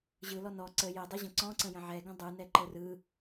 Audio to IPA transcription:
ʑ ɯ l ɔ n ɔ ǀ ə j ə dˤ ɛ ʑ ə̃ ǀ ɔ̃ ǀ ə̃ j ə̃ ʕ ɛ ɡ ə̃ dˤ ɯ n ɛ ǃ ə r ɯ

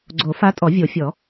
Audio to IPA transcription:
ɡ͡ǀ o˨˩˦ f a˧˥ tʼ ɔ˨˩˦ vʲ o˨˩˦ fʲ ɔ˨˩˦

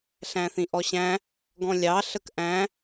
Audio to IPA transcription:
ɬ æ̃ θ ĩ ʔ ɔ ɕ æ̃ | ɡ ɔ̃ lʲ ɑ ɬ ə k ʔ æ̃

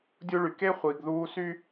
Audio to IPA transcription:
dʲ u˦ ɭ y˨ k e˦ χʷ iː˨ ɡ ð uː˦ s y˦

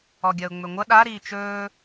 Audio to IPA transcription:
ɔ ɡʲ ɐ ʊ̯ ŋ͡m ɵ ŋʷ ɐ ɗ a ɾ iː t͡ʃ ɵː

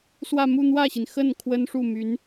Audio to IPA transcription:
s w ä˥˧ m u˥˧ n̪ w ä˥˩ ɕ i˩ n x ə˥˩ n kʰ w ə˥ n ʂ u˥˩ m y˧˥ n

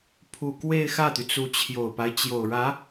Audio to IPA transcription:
pʰ u˨˩ k w e˥˧ ɪ̯ x ä˥˩ t̪ y˩ t͡s u˧˥ t͡ɕʰ j o˨˩ ʊ̯ p a˦ ɪ̯ t͡ɕ j o˨˩ ʊ̯ ɻ ä˧˥

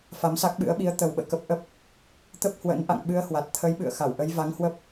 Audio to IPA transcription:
f a˨˦ m s a˦˥ k̚ ɓ ɨ̰˧˥ ə̯ ɓ i˨˦ ə̯ t̪ ə˨˩ w ɓ ə̰ː˧˨ k ə˦˥ p̚ ʔ ə˦˥ p̚ | t̪ ə˦˥ p̚ h w ə̰˧˥ n ʔ a̰˧˨ ŋ ɓ ɨ˧ ə̯ h w a˨˩ t̚ t̪ʰ ə˨˦ j ɓ ɨ̰˧˨ ə̯ x a˧˩ w ʔ ə˨˦ j v a˨˦ ŋ h w ə˦˥ p̚

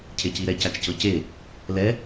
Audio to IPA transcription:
cʰ e c i ɾ ɛ c a t͡ʃ c ɤ c e | l ɛ

